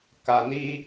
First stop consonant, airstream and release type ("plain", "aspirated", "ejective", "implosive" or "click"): plain